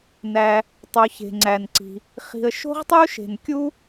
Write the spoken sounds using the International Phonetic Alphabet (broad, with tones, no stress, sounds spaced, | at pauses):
n æ˩ | tˤ o˩ ç e̤˩ ŋ͡ǀ æ˩ n ǀ i̤˩ | χ i̤˩ ə̯ ʃ o̤˥ ʁ tˤ u˥ ʃ e̤˩ n kʲ u˥